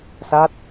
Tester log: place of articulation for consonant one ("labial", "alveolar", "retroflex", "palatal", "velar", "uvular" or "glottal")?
alveolar